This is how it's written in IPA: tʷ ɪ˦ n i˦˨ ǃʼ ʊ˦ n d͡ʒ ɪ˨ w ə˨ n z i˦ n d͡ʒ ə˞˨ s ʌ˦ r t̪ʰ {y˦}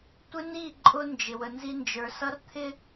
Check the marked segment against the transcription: incorrect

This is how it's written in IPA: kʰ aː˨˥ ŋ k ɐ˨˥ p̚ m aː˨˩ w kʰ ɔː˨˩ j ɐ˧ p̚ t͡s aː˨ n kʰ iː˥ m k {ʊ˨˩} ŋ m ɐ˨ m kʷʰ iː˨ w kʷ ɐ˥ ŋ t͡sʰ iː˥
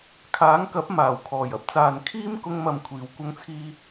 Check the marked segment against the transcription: incorrect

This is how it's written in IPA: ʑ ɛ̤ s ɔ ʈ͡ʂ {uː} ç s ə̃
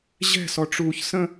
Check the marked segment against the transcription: correct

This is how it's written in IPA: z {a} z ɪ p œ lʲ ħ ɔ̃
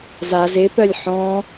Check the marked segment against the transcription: correct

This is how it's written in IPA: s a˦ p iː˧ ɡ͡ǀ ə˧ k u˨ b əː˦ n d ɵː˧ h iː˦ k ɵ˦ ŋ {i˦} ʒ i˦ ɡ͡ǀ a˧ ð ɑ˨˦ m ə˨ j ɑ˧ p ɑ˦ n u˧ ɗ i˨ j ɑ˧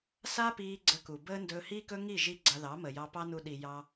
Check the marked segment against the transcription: incorrect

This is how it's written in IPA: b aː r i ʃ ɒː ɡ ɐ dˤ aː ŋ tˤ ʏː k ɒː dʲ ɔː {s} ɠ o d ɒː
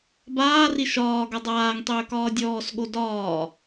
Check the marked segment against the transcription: correct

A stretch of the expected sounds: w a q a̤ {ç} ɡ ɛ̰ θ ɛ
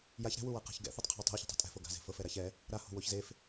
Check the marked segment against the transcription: correct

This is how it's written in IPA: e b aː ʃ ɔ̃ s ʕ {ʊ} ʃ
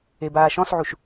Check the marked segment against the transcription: incorrect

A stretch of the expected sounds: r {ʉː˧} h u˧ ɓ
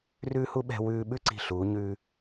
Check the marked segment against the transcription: correct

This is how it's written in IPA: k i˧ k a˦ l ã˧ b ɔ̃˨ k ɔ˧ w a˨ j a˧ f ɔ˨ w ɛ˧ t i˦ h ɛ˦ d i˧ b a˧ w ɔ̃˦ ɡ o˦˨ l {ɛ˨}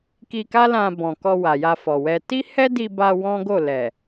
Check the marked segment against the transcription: correct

